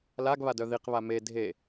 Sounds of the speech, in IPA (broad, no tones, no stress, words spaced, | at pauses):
laɡβadœ ðiqβa me dʱe